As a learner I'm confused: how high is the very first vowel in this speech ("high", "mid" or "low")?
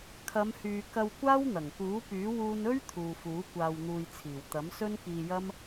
low